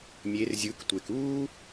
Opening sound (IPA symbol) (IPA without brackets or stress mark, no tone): mʲ